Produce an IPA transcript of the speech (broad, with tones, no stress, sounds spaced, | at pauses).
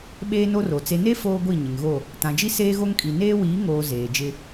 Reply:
ɓ eː˦ n o˦ r o˨ t͡s e˨ n e˦ f oː˦ ɡʷ i˦˨ ɲ ɪ˨ ŋ ɣ o˦˨ | t ã˨ d͡ʒ i˦ s eː˦ ɣ o˦ ŋ kʼ i˨ n eː˦ w iː˨˦ ŋ oː˨ z eː˨ d͡ʒ ɪ˦